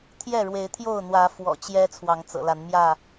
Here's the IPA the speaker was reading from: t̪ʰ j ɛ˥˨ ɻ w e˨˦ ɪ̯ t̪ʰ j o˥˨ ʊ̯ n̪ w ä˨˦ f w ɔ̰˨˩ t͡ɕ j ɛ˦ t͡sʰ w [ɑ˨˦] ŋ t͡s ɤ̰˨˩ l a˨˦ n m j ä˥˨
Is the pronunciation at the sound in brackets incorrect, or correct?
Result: correct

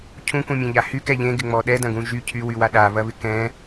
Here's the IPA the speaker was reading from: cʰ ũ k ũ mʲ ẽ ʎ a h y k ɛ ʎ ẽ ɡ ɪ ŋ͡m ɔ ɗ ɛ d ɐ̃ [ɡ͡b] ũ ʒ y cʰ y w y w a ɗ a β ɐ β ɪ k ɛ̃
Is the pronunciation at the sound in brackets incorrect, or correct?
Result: incorrect: ɡ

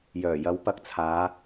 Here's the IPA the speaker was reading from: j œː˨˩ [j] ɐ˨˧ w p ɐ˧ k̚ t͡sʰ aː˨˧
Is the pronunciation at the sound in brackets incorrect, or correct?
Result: correct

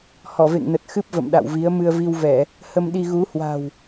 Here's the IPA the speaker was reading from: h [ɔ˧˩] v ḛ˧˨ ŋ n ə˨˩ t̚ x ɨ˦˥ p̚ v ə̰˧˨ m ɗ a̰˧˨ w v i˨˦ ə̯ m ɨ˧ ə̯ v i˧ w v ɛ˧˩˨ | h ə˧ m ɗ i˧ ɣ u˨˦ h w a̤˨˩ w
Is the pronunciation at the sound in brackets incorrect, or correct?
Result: correct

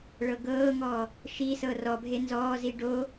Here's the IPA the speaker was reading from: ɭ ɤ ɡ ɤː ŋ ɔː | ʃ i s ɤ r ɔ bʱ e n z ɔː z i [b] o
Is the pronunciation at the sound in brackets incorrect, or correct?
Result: incorrect: ɖ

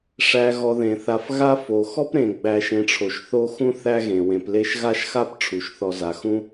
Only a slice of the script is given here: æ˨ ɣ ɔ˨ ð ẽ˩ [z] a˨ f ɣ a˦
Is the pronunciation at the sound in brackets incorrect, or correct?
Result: incorrect: θ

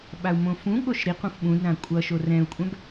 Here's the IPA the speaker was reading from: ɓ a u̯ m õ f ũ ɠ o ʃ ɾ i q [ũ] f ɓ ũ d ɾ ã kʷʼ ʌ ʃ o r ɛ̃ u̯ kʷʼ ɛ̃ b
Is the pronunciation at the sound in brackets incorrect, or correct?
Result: correct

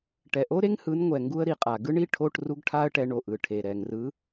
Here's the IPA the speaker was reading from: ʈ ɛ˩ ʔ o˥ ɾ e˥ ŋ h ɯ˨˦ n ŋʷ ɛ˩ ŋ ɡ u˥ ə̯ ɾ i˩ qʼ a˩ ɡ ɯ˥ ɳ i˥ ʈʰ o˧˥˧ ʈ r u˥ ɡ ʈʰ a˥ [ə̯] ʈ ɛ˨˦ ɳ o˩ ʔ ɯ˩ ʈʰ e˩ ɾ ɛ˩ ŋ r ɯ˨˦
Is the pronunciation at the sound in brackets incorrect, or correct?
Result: correct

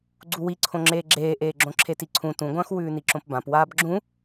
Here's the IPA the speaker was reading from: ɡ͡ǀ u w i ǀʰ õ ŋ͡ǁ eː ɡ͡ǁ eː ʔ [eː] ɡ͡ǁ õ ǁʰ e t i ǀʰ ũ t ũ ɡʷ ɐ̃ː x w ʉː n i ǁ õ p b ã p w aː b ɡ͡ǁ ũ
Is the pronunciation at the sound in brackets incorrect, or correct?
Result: correct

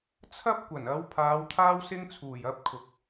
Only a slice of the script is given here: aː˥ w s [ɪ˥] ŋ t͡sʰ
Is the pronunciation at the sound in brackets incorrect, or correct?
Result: correct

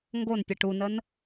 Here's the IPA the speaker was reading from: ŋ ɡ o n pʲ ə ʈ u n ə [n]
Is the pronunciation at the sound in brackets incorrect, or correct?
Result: correct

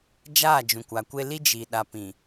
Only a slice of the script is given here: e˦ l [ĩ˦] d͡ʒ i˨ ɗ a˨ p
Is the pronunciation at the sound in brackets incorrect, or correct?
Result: incorrect: i˦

